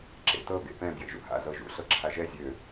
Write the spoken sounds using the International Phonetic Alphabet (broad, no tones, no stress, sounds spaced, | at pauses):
ǁ ḛ t ɤ ɡ ḛ p ɛ̃ b j ḛ ʒ ṵ h a̰ z ɤ ʒ ṵ ɬ ɤ ǁʰ a ʒ ɛ zʲ ø